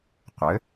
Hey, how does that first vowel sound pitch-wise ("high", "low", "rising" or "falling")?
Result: rising